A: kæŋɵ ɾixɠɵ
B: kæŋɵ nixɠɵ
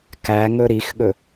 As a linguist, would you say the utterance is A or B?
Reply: A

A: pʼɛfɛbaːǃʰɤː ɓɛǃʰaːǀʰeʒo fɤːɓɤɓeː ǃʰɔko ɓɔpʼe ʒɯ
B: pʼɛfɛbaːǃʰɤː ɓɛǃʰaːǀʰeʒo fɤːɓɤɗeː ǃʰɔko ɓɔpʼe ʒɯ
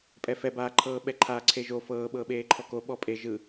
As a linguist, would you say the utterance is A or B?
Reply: A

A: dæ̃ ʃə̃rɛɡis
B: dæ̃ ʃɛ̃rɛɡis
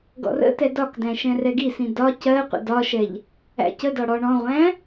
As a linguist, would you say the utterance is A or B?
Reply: B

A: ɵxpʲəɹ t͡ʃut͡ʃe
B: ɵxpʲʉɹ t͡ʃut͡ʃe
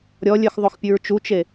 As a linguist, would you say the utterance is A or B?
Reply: B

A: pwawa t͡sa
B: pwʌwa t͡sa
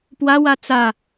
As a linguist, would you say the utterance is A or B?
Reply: A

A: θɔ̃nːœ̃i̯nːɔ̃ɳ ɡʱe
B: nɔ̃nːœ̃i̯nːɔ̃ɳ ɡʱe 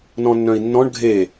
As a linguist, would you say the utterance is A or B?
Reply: B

